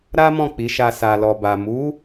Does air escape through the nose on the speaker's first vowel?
no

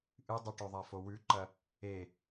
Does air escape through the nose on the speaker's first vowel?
no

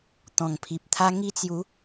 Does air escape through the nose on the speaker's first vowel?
yes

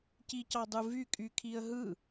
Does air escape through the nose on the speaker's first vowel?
no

